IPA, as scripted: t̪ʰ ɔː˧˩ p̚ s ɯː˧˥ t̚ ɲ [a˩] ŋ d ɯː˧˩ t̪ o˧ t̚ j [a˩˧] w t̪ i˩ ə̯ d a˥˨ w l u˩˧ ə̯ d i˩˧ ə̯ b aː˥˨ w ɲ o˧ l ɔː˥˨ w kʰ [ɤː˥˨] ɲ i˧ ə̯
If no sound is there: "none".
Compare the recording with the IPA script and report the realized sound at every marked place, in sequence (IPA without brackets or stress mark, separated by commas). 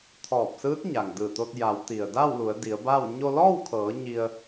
a˩, a˩˧, ɤː˩˧